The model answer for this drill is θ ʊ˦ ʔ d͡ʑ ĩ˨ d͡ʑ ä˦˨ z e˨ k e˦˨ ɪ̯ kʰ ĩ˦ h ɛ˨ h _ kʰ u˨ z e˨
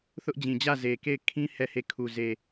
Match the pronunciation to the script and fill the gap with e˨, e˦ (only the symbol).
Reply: e˨